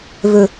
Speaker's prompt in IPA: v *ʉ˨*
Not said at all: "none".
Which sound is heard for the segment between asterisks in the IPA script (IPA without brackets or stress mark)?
ʉ˨